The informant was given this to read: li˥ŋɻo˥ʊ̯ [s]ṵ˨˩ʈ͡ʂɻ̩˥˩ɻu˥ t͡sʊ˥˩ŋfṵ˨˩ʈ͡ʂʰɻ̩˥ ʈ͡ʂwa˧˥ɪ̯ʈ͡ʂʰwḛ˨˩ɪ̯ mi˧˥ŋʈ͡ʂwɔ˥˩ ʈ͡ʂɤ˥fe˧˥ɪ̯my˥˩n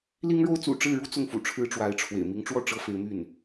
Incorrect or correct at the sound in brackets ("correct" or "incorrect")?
incorrect